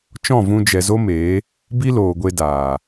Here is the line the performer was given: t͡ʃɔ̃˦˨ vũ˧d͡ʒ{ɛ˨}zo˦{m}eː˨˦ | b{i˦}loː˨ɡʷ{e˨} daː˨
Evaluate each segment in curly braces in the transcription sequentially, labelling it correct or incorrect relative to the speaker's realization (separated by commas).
correct, correct, correct, incorrect